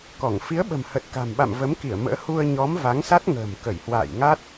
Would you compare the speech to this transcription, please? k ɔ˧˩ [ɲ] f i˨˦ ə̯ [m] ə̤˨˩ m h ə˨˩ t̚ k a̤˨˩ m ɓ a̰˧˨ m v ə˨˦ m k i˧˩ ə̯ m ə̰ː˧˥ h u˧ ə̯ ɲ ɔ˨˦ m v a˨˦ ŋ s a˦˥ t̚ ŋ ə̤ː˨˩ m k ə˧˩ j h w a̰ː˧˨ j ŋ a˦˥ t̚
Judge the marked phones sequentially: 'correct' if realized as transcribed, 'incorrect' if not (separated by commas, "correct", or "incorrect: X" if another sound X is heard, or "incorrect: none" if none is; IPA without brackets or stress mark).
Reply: incorrect: ŋ, incorrect: ɓ